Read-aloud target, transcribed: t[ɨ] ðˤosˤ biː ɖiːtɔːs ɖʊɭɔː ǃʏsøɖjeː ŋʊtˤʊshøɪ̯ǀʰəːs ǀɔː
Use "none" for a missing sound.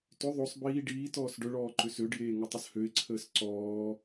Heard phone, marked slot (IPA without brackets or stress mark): ʏ